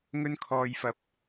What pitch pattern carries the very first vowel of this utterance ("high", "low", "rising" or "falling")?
high